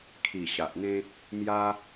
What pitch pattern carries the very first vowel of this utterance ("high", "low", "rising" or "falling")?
low